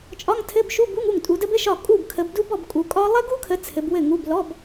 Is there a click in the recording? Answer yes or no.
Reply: no